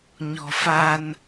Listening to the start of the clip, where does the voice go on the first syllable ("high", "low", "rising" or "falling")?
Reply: low